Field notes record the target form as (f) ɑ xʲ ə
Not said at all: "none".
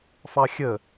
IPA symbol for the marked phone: f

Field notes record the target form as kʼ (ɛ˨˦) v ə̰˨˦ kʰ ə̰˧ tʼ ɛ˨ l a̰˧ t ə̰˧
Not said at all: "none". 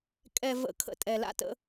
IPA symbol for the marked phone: ɛ˨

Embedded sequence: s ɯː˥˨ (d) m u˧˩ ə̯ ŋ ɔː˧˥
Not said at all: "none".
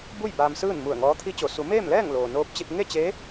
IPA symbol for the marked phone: n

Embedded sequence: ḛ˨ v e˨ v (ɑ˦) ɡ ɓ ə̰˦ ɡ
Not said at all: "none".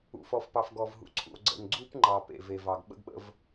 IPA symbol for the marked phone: ɑ˨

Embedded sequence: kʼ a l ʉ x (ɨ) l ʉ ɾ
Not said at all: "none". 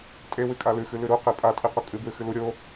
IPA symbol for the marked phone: ɨ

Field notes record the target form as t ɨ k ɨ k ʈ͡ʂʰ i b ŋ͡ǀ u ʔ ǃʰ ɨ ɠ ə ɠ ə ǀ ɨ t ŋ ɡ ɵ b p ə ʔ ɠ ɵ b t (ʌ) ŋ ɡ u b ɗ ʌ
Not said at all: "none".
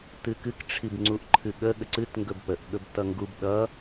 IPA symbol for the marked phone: ʌ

